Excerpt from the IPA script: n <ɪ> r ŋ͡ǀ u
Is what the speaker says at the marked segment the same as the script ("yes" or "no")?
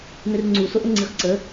yes